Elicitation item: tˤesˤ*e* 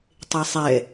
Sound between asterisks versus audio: incorrect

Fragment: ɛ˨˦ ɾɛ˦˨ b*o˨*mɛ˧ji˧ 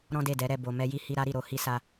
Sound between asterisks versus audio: correct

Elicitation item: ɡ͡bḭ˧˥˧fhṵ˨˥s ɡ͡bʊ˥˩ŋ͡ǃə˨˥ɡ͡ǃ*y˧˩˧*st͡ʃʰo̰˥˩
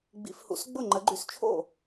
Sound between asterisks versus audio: correct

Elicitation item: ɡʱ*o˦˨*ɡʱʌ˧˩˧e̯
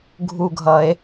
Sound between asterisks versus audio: incorrect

